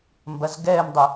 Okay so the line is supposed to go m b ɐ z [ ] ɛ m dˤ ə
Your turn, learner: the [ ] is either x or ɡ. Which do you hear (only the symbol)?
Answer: ɡ